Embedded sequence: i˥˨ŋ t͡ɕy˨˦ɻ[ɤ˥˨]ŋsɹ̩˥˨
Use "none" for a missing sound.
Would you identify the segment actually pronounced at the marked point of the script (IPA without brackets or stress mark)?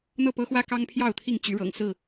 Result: ɤ̰˨˩